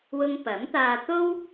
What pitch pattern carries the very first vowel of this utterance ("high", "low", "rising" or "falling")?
high